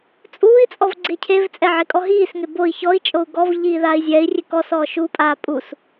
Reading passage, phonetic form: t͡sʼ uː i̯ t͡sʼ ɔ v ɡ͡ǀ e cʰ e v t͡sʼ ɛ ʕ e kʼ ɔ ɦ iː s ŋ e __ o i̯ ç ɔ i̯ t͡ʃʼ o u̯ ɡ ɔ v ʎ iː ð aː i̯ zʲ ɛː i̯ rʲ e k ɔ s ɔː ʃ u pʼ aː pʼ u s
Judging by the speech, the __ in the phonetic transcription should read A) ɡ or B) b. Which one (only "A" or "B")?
B